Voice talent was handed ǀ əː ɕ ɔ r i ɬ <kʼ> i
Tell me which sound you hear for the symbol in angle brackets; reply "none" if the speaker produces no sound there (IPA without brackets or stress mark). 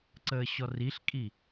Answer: kʼ